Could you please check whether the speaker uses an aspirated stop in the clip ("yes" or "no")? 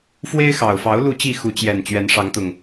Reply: no